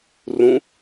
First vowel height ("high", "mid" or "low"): high